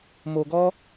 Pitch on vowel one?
low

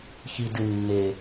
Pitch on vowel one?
low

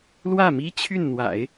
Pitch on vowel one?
falling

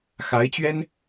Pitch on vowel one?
rising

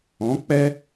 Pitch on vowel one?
rising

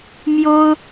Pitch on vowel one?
high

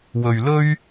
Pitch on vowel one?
low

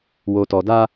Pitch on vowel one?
low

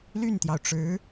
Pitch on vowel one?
falling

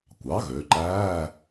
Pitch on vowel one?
rising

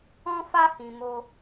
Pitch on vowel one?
high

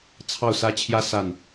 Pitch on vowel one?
falling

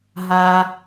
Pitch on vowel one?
low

